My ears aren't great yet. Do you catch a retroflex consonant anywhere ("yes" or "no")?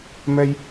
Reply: no